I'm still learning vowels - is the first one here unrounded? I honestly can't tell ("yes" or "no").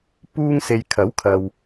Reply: no